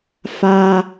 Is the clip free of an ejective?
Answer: yes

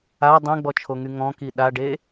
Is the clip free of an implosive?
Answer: no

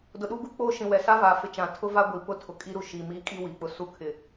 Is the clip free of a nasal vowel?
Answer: no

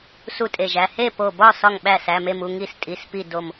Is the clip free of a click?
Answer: yes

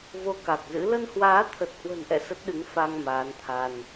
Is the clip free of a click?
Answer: yes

